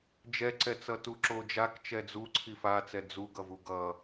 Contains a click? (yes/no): yes